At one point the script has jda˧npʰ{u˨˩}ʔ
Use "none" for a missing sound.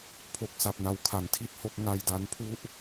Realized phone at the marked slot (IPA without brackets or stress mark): u˥˩